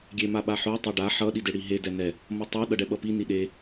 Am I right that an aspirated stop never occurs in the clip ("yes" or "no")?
yes